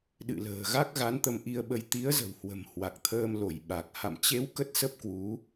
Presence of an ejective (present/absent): absent